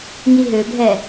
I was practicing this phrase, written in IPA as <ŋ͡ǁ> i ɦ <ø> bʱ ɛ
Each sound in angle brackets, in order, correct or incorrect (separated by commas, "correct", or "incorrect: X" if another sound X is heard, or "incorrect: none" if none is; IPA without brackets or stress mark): incorrect: ŋ, correct